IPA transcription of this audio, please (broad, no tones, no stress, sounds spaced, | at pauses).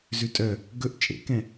z ʉ tʼ œ | ɡ ɵ ʔ t͡ʃʼ ḛ k ɛ̃